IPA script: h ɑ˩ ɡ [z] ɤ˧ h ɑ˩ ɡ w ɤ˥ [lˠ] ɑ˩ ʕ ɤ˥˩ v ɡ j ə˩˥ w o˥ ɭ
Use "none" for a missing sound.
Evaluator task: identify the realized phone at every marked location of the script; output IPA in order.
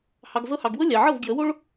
z, lʲ

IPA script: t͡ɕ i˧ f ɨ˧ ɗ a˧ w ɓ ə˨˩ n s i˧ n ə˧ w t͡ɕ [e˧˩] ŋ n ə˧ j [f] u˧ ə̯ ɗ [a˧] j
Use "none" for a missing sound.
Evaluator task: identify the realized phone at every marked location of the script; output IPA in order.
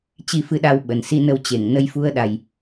e˧˩, f, a˨˩

